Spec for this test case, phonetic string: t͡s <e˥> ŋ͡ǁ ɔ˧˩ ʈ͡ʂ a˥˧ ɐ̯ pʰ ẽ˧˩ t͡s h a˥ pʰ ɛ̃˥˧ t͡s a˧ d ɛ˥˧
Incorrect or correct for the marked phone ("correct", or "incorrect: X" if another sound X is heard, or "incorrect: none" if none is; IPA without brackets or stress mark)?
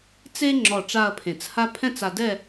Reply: correct